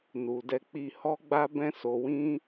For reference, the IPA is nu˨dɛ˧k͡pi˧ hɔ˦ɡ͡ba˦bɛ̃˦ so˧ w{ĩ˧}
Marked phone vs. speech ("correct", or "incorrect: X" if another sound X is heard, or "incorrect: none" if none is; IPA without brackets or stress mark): incorrect: ĩ˦